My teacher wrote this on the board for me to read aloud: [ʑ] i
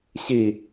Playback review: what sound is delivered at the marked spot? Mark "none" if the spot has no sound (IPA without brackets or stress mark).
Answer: ɕ